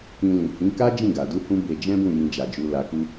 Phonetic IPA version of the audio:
kĩ˧lĩ˨hĩ˨˦ ka˦ d͡ʒĩ˦˨ɡa˨ du˧hũ˧ be˧d͡ʒɛ̃˦bũ˦˨jĩ˧ d͡ʒa˨d͡ʒu˧la˧ku˦

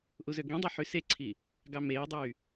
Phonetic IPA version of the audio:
ʔuzøɡĩdˤo ħyseǀʰi | ɡɑmeːdˤyː

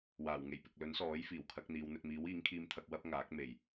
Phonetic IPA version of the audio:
waː˨˩wŋe˨˩jpɪ˨k̚ lɵ˨˥nsɔː˨˥j fiː˨˩wkʰɐ˨˥k̚n̪iː˨˧wn̪ɵ˧t̚ miː˨˥wiː˨˥ŋkʰiː˧mt̪ʰɐ˧k̚ wɐ˥p̚ŋaː˨˥k̚ me˨˩j

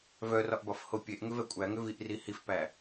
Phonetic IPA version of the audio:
vœrɒʔbɒfho pʲeʔŋʏvɛ kʷʼæŋʏviʔri hifpæ

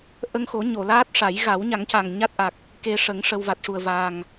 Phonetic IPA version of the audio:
ʔə˧ŋxo˨˩˦ ɲo˨˩˨laː˦˥t̚ʂa˨˩˦j ɣa˨˩˦wɲa˨˩˦ŋca˨˩ŋ ɲa˦˥t̚ʔa˨˩k̚ | ke˧ʂə˨˩˦ŋ ʂə˧w va˨˩t̚ʂu˨˩ə̯vaː˨˩ŋ

